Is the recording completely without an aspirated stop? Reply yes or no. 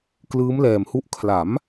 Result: no